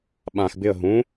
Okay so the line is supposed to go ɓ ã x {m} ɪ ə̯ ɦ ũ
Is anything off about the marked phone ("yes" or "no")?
yes